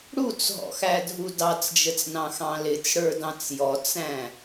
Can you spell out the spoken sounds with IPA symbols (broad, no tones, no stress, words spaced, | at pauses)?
ɽut͡sɦɔ̰xædʱu dɑt͡sd͡ʒət͡snɑ̃xɑ̃ lɪt͡sɽə˞dɑ̃t͡s jɔt͡sæ̃